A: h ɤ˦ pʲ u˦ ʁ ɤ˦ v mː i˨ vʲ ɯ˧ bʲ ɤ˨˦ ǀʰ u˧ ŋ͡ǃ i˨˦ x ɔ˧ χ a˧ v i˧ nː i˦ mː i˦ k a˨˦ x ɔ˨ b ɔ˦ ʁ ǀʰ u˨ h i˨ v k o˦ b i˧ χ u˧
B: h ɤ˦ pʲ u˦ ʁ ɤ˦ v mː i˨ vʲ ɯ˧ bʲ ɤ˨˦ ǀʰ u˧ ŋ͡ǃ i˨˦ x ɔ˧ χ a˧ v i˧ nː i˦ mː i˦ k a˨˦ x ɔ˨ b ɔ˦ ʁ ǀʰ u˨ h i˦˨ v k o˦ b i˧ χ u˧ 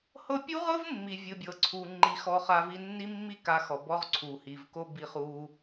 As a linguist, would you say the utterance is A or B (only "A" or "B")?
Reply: A